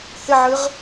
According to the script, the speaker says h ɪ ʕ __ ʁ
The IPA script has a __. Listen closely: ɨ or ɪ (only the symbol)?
ɨ